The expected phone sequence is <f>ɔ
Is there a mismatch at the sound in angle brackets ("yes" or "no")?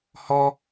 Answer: yes